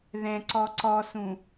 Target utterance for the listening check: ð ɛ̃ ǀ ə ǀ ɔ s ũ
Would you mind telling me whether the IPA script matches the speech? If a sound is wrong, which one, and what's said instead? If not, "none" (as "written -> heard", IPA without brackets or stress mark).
ə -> ɔ